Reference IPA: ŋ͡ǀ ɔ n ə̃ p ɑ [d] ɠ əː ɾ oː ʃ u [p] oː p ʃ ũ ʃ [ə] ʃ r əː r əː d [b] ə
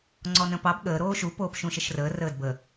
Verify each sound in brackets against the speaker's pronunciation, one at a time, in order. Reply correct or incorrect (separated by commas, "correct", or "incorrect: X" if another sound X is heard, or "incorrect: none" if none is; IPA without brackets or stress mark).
incorrect: b, correct, correct, correct